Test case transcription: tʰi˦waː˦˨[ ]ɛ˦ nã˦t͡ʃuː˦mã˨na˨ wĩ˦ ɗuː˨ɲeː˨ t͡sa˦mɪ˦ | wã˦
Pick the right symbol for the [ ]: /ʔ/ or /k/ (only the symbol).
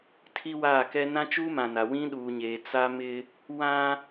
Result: k